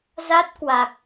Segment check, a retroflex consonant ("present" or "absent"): absent